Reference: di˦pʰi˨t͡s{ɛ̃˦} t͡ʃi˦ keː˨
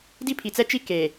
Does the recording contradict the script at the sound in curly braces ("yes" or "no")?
yes